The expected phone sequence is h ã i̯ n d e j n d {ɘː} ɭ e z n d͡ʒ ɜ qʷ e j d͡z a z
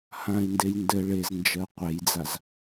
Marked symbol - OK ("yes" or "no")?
no